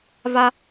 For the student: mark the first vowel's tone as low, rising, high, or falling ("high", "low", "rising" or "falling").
high